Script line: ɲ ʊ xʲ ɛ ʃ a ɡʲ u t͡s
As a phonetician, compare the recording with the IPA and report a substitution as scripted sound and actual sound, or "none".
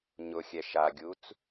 none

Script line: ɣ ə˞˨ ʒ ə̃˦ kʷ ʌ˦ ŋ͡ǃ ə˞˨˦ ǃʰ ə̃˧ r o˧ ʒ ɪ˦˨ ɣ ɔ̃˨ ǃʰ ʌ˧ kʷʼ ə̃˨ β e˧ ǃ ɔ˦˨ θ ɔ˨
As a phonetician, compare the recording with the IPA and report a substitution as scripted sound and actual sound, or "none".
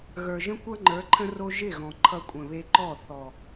none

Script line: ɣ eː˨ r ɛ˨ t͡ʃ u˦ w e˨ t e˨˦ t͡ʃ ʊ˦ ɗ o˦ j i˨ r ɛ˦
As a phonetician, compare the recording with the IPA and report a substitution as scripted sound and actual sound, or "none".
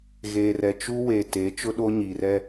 j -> ɲ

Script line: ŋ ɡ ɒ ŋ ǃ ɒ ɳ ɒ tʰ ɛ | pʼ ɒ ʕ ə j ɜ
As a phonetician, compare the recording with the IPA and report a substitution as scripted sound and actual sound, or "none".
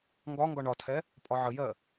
ǃ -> ɡ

